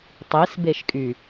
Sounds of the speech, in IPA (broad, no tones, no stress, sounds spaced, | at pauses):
tˤ i s b e ʃ kʼ y